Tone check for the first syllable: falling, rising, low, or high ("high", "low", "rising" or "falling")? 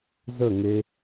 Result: falling